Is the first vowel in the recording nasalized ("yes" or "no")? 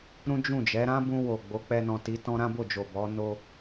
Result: yes